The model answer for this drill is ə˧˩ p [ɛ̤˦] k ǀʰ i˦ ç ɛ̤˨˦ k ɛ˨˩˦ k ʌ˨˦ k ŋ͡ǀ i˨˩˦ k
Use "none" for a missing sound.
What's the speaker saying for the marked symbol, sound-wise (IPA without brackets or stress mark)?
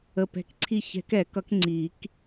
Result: ɛ̤˧˩